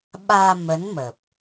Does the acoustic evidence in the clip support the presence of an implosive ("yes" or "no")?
yes